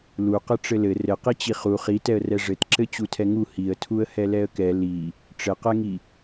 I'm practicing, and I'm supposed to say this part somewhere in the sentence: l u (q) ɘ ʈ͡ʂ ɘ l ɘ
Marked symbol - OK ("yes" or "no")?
yes